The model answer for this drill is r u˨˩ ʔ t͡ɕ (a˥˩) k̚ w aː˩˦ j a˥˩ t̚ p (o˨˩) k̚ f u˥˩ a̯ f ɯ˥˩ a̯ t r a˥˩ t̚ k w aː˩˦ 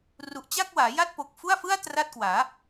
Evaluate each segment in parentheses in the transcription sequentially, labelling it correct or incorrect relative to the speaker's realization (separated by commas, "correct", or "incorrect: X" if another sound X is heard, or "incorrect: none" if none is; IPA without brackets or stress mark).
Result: correct, correct